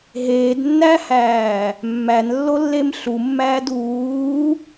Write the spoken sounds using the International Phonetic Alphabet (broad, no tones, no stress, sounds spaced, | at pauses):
ɦ eː d nː æ h æː | mː æ n lː o lː e m ɬ u mː æː d uː